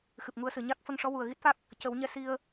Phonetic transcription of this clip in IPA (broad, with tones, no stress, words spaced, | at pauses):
xɨ˨˩p̚ŋu˧ə̯sɨ˨˩˨ ɲa˦˥k̚ fə˧ŋʂɔ˧˥ wu˨˩ə̯ɣi˦˥t̚fa˦˥k̚ | cə˨˩˦wɲɛ˧˥ si˧ə̯